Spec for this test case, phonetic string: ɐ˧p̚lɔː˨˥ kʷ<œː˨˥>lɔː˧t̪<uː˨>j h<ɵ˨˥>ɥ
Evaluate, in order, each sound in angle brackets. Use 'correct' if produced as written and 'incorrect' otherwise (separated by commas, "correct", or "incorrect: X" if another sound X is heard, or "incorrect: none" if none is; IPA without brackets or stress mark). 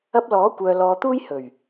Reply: incorrect: œː˧, incorrect: uː˥, incorrect: ɵ˨˩